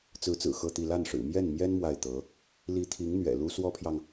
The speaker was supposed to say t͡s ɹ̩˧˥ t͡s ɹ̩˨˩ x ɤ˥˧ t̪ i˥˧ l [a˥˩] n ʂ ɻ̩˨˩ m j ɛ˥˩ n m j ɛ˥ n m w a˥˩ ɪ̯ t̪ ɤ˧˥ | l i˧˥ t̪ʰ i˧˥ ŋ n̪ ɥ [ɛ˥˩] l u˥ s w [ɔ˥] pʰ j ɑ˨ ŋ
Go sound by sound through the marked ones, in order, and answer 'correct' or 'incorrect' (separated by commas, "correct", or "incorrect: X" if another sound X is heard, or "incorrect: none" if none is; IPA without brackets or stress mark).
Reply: correct, incorrect: ɛ̰˨˩, correct